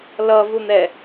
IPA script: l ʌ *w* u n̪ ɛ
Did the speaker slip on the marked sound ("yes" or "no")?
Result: yes